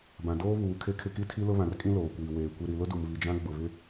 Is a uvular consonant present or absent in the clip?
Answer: absent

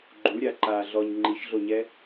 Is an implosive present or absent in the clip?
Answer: absent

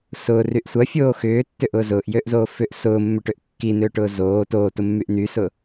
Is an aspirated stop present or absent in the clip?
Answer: absent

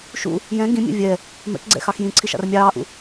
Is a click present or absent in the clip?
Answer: present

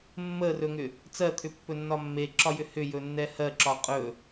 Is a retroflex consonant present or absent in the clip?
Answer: absent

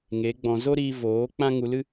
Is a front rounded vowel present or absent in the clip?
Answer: absent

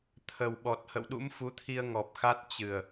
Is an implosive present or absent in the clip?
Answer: present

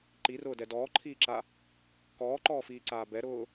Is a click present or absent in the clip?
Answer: present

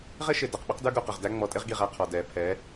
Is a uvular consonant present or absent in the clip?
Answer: present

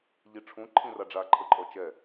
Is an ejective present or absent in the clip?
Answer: present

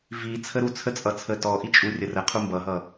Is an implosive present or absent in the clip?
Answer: absent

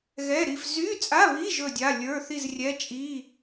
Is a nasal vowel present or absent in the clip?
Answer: absent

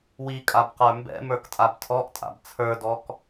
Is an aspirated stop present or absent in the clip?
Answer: present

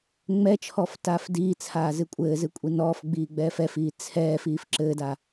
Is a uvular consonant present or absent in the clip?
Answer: absent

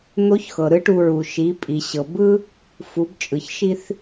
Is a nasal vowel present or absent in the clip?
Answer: absent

